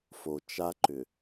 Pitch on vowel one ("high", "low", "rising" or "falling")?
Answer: low